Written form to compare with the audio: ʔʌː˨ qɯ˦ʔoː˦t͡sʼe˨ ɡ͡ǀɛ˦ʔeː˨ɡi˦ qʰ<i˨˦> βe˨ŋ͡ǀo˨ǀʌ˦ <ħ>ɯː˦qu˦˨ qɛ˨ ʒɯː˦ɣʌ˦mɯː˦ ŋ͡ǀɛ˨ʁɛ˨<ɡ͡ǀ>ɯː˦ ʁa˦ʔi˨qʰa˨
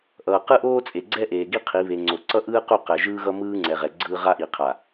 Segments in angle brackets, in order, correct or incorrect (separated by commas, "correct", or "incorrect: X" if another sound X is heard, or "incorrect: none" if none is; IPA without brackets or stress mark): correct, incorrect: ʔ, correct